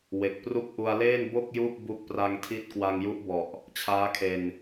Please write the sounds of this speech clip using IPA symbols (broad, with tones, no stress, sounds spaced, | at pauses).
w e˨˩ k̚ p r u˥˩ k̚ ʔ u˧ a̯ l eː˥˩ n b o˥˩ k̚ j u˥˩ ʔ b u˦˥ k̚ p r a˧ ŋ tʰ i˦˥ t̚ k w a˧ ŋ j u˦˥ ʔ b ɔ˨˩ ʔ | t͡ɕʰ aː˦˥ kʰ e˧ n